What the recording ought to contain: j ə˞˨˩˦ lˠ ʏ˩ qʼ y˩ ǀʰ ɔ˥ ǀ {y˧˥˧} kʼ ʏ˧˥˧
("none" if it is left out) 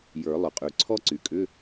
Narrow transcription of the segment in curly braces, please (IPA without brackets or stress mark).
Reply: y˩